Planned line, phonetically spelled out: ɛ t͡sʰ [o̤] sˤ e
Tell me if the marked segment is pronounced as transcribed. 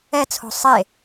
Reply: yes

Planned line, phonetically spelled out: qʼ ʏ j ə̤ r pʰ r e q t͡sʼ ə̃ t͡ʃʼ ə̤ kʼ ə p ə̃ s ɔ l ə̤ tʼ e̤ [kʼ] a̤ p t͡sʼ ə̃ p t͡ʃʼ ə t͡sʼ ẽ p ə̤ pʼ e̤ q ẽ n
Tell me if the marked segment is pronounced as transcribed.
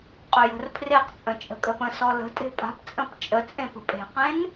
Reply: no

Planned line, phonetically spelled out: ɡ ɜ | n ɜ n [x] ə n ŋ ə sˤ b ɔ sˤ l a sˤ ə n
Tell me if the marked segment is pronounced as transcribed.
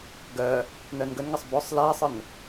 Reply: no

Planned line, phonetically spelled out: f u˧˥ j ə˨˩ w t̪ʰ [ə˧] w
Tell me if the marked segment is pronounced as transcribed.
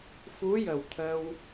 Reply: yes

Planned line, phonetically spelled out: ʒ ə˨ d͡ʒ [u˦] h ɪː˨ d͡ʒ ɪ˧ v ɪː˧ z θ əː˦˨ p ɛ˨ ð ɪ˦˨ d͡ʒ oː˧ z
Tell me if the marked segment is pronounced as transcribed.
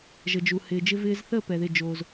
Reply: no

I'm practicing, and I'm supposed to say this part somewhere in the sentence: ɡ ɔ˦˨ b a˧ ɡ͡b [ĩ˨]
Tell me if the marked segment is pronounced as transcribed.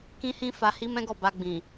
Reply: yes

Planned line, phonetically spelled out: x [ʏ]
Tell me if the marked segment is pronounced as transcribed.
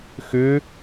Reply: yes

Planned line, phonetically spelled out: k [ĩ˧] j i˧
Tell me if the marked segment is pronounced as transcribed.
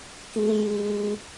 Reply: no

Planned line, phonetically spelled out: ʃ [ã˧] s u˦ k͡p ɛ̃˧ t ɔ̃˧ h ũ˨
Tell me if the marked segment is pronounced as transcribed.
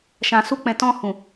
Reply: yes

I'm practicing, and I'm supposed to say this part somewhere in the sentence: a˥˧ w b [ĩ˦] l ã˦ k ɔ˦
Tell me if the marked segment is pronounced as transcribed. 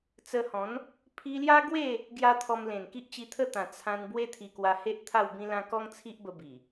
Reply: yes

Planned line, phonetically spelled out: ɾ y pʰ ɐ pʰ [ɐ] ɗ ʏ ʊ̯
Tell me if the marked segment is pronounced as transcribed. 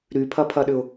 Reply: yes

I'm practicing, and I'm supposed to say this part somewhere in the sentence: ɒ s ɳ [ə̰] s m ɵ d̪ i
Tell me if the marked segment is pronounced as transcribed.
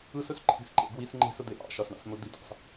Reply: no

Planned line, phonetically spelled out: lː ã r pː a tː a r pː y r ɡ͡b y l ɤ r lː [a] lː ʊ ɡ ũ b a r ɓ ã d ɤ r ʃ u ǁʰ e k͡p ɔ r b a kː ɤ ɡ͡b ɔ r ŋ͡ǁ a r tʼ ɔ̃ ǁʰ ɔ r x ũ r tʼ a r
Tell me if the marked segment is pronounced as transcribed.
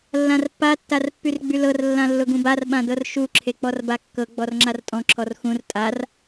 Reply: no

